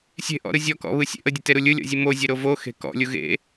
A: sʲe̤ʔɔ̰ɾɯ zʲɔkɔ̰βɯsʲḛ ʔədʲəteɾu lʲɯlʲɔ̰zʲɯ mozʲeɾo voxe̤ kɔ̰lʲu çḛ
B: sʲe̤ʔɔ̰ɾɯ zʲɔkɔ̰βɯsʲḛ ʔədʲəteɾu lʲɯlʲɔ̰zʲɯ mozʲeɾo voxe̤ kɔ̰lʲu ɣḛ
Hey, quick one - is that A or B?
B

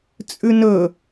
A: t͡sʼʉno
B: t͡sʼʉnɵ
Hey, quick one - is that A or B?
B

